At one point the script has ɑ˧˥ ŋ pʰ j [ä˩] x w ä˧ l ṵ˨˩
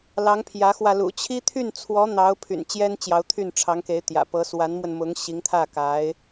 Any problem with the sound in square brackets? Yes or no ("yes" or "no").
yes